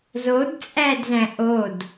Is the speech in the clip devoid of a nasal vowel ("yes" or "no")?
no